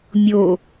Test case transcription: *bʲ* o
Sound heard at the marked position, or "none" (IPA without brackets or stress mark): mʲ